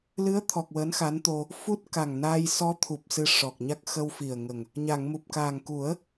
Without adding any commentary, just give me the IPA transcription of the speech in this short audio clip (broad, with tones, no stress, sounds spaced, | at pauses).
l ɨ˧˥ ə̯ t̪ʰ ɔ˨˩ k̚ w əː˧˥ n x a˧˥ n t̪ o˧ | f u˦˥ t̚ k a˨˩ ŋ n aː˧ j s ɔ˧˥ t̪ʰ u˨˩ p̚ s ɨ˧ ʂ ɔ˨˩ k̚ ɲ a˦˥ k̚ x ə˧ w f i˨˩ ə̯ ŋ ə˨˩ ŋ | ɲ a˨˩˨ ŋ m u˨˩ p̚ k aː˨˩ ŋ k u˨˩˦ ə̯